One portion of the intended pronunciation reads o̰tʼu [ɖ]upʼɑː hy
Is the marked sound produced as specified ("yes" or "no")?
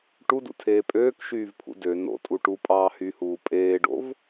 no